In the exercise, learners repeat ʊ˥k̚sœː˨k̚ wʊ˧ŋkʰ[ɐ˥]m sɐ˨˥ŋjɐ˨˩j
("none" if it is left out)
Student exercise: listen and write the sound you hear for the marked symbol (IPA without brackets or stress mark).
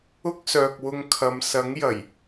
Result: ɐ˨